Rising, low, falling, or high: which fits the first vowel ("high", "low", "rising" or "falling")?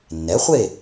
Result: rising